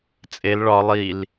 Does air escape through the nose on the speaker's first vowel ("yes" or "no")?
no